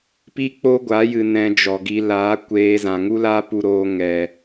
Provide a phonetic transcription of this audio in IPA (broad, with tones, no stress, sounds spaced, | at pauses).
p i˦ k͡p o˦ ɡʷ a˨˦ j ɨ˨ n ɛ̃˧ d͡ʒ ɔ˨ ɡ i˧ l aː˨˦ kʷ eː˧ z ã˨ ŋ u˦ l aː˦ p u˧ ɾ oː˧ ŋ ɛ˨